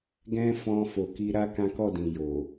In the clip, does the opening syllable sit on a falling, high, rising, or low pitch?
high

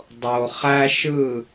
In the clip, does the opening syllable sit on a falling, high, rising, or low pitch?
low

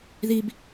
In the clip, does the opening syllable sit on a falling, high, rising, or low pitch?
high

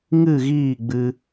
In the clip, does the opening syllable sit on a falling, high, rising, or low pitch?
falling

